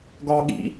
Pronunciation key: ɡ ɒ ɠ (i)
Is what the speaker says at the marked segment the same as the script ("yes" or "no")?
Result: no